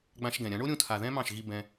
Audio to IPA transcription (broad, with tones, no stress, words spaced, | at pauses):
ɡ͡bã˧ʃ ɡɛ̃˨ɾʲã˨˦ ɳo˦ɾʲũ˧tʰa˨ ðɛ̃˦mɑ̃˦˨ʃɣi˧ bɛ̃˧